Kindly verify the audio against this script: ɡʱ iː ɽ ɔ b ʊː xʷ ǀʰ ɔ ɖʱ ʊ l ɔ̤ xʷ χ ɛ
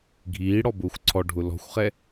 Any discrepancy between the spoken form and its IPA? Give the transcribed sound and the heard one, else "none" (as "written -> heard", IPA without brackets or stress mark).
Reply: none